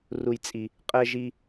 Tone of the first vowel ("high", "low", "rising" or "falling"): high